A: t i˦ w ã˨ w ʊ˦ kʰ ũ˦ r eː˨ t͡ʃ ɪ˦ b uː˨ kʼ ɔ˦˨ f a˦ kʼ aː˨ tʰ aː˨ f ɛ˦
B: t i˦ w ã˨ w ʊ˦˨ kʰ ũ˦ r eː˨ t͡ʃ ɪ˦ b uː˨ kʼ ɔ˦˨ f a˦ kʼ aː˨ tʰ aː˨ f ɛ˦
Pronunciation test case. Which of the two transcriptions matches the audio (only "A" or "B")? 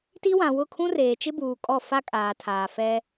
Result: B